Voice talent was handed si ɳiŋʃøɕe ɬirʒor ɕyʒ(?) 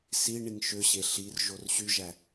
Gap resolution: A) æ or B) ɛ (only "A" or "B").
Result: A